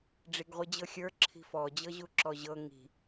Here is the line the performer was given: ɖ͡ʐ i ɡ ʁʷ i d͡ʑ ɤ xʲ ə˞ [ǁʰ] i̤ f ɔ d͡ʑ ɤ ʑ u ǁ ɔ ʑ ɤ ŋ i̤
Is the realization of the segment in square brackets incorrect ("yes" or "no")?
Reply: no